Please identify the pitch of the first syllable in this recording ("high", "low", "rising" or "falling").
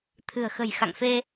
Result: low